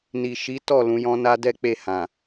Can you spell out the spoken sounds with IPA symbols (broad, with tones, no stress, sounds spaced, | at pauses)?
n i˨ ʃ i˨˦ t ɔ˦˨ l ũ˨˦ j ɔ̃˦ n a˦ d ɛ˦ k͡p e˦˨ h ã˨